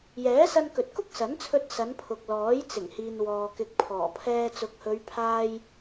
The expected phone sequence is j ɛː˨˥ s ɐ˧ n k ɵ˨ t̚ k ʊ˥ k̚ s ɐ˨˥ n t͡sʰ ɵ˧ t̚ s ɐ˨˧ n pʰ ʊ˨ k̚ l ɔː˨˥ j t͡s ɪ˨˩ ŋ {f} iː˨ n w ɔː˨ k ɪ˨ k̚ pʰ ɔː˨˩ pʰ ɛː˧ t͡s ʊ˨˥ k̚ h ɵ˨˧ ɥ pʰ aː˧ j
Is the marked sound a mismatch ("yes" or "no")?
yes